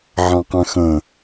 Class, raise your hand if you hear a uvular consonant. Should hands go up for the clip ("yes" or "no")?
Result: yes